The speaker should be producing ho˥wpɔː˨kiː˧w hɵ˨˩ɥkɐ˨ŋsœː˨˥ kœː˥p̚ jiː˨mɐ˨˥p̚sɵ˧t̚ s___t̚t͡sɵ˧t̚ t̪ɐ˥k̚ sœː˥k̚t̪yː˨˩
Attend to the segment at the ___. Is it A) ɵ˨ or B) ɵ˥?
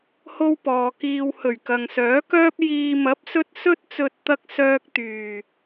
B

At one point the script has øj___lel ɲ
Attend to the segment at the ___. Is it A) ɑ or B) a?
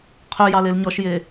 A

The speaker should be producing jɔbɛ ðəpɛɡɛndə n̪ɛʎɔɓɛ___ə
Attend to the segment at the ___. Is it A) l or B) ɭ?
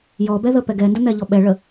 B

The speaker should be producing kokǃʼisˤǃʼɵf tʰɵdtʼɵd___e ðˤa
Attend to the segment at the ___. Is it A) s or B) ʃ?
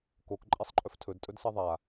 A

